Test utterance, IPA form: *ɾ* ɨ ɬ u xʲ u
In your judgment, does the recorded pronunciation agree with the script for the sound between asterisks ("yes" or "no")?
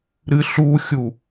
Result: yes